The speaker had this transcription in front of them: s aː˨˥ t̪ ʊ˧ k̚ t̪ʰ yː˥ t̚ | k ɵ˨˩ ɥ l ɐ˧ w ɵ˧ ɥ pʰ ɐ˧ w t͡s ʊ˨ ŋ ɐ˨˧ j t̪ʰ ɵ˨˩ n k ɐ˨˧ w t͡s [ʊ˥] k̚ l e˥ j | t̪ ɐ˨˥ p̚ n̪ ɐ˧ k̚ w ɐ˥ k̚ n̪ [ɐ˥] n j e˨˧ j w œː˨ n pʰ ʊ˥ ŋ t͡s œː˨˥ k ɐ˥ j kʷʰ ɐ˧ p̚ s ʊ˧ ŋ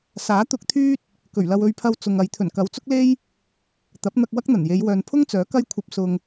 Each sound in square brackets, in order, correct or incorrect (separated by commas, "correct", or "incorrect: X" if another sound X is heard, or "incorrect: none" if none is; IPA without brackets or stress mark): correct, incorrect: ɐ˨˩